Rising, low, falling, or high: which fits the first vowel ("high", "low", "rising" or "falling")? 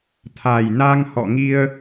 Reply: low